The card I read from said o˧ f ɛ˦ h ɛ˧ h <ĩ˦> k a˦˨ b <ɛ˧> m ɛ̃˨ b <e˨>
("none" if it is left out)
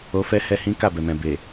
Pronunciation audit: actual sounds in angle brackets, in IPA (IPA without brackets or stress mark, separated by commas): ĩ˦, ɛ˨, e˨